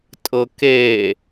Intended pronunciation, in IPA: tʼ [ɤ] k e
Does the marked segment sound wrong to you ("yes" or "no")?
no